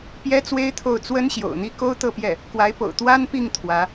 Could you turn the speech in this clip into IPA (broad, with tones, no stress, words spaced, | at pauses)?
pjɛ˥t͡swe˥ɪ̯t̪ʰo˥˩ʊ̯ t͡swə˥n ɕjo̰˨˩ʊ̯n̪i˥ ko˥ʊ̯t̪ɤ˥˧pjɛ˥˩ | kwa˧˥ɪ̯po̰˨˩ʊ̯ t̪wa˥npi˥˩ŋ t̪ʰwä˧˥